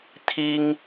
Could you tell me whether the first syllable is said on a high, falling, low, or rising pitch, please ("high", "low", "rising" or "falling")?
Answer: high